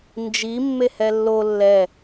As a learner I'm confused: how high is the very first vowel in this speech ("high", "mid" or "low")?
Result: high